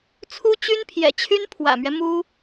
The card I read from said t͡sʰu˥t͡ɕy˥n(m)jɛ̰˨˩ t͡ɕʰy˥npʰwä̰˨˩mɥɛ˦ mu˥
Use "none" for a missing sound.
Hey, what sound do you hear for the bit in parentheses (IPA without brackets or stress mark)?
pʰ